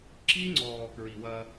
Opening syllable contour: high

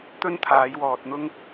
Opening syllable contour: high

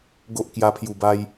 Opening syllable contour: high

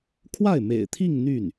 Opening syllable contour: falling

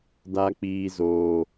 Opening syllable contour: high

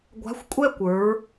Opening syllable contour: rising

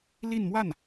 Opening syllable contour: falling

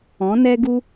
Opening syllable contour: rising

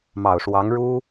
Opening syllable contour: low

